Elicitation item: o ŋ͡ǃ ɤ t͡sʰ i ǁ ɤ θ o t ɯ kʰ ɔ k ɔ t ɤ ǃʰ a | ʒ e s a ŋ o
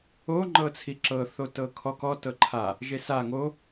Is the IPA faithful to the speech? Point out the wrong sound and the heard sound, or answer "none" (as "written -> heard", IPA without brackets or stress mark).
ɯ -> ɤ